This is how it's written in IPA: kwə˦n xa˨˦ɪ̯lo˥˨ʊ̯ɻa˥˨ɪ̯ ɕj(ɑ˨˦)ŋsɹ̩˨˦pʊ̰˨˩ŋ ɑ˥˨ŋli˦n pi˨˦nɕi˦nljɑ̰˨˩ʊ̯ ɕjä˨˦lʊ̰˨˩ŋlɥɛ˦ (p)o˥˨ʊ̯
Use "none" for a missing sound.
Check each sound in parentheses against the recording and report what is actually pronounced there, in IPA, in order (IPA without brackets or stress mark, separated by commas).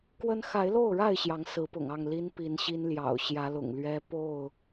ɑ˨˦, p